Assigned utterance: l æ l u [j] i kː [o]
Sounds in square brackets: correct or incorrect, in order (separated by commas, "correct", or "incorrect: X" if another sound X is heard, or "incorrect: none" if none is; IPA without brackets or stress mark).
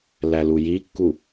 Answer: correct, incorrect: u